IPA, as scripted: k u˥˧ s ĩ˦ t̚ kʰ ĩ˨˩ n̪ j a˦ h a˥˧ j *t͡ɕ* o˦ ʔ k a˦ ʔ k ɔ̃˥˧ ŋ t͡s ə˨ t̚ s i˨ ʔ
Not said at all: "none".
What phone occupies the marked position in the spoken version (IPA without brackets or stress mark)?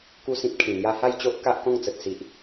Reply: t͡ɕ